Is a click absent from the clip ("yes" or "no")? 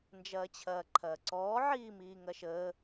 no